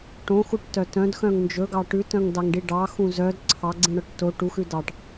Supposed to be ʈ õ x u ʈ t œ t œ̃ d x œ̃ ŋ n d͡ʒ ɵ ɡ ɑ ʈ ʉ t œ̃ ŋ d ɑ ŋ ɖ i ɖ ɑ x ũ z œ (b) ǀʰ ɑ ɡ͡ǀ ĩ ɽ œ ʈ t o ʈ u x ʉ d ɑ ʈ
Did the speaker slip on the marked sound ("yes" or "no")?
yes